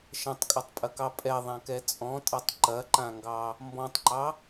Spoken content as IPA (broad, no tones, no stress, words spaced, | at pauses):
ʃɐ̃tˤkʼɐtˤpʼɐkɑ pʼɛðˤãkɛ t͡sʼɔ̃tʼatˤ ǃɐǃãŋɡɑ | mbɔ̃tˤǃɑ